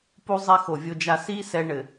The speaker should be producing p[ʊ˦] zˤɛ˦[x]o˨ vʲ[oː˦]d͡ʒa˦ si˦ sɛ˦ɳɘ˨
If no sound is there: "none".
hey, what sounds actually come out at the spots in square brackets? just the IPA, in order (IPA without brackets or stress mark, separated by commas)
u˦, x, o˦